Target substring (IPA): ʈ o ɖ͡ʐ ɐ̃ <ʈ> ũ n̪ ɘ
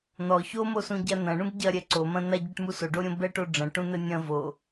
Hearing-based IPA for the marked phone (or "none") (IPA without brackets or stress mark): ʈ